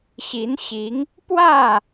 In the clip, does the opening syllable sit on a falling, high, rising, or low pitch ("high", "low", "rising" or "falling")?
rising